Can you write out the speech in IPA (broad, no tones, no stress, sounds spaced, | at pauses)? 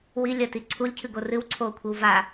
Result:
w i lʲ ɐ t i ǀʰ u lʲ cʰ ɨ ɡ o r ɨ w ǀʰ oː kʷʰ e w v a